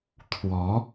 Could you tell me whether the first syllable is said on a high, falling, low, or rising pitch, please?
rising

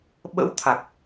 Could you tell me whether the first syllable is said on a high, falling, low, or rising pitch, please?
rising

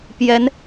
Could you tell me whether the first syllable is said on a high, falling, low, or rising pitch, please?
rising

